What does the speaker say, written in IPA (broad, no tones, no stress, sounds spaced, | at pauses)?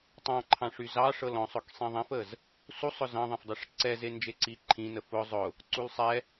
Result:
tˤ ɑ̃ ǃʰ ɑ̃ ʂ y z ɑ ʂ ɤ l ɔ̃ sˤ ʊ k sˤ ĩ ðˤ ɛ̃ f ə z | s u sˤ ʊ z ɑ̃ ðˤ ɛ̃ f dˤ e ʂ ǀ ɛ z e n d͡ʒ e ǀ i ǃʰ ĩ n ə f ʊ zˤ ʊ | ǀ u l sˤ ɛ